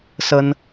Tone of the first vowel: high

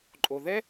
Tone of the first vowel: low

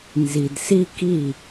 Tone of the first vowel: low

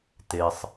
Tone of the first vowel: low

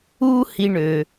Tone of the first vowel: high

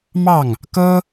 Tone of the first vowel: falling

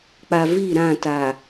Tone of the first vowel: low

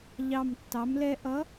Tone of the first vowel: low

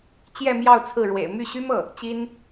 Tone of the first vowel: falling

